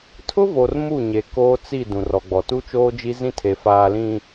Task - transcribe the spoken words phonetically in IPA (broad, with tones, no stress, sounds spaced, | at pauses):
tʰ ʊ˦ v o˨ r m u˦˨ ɲ e˨ k oː˦ t͡s i˦˨ d ũ˨ r ɔ˨ ɡ͡b ɔ˨ t u˦ t͡ʃ oː˦ d͡ʒ i˦ z ĩ˦ tʰ e˨ f aː˨ l ĩ˨